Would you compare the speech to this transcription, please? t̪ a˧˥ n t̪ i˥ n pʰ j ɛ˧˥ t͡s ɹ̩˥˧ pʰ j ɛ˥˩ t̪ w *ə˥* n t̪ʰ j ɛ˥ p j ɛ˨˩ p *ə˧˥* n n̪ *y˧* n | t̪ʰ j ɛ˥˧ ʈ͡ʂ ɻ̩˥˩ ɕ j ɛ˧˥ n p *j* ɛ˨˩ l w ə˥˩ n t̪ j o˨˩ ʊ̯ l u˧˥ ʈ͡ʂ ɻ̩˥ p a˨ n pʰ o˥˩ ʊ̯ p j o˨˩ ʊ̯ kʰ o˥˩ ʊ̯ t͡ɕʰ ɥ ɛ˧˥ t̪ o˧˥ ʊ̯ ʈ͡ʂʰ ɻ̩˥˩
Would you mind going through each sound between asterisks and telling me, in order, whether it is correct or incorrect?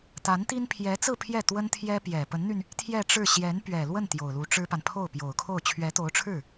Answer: correct, correct, correct, incorrect: ɥ

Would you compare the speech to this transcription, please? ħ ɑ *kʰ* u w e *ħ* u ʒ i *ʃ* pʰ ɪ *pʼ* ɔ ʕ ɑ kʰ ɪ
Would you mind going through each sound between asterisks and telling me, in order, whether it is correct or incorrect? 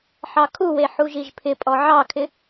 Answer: correct, correct, incorrect: ʒ, correct

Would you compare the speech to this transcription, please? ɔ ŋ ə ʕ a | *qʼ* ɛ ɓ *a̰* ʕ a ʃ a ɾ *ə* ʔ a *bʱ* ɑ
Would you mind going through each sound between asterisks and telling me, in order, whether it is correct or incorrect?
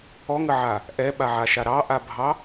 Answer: incorrect: ʔ, incorrect: a, incorrect: ɑ, correct

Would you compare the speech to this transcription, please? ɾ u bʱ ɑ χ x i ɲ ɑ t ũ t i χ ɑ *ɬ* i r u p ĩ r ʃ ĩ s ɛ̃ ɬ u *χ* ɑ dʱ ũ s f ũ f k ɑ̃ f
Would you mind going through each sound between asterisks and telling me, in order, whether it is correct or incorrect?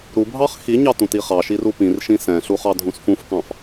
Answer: incorrect: ʃ, correct

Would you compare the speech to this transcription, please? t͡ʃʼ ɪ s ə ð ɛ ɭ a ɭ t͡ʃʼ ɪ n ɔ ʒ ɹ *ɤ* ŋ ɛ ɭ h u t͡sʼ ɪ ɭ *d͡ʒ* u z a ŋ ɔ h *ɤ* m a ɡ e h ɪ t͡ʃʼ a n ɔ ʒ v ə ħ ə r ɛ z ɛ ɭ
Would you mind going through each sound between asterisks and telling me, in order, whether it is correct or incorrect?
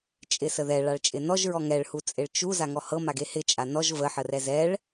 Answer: incorrect: ɔ, incorrect: t͡ʃ, correct

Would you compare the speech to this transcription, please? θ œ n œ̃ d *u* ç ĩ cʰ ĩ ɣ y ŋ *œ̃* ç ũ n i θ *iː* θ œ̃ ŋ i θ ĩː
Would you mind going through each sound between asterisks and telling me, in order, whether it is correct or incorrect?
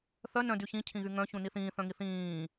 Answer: incorrect: y, correct, incorrect: ĩː

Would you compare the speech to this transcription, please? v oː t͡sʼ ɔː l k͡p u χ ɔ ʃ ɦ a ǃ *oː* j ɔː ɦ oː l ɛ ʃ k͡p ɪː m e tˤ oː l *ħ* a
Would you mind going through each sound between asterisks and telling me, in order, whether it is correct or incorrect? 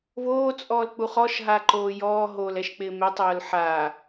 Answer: correct, correct

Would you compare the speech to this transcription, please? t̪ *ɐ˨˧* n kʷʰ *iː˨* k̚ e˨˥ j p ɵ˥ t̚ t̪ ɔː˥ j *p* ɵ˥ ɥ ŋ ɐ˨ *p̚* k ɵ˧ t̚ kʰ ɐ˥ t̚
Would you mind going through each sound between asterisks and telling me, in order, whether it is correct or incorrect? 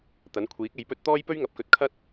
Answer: incorrect: ɐ˨˥, incorrect: iː˨˥, correct, correct

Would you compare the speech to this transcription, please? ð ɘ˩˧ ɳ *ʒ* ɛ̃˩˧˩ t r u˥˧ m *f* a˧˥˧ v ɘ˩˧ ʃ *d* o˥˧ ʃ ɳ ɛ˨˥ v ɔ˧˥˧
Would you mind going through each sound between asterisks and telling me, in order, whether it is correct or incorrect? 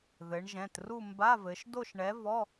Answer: correct, incorrect: b, correct

